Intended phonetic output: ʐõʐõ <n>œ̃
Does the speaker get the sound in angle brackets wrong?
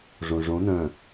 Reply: no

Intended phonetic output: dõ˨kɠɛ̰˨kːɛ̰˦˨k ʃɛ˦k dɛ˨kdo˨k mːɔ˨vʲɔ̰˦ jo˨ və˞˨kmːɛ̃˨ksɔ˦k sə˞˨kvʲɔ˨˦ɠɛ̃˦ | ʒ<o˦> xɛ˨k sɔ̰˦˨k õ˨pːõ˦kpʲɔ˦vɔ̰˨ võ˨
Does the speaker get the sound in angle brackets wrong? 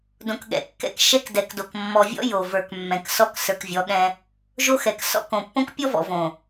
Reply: no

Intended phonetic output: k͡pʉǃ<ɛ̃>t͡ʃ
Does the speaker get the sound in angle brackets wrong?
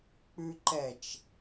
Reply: yes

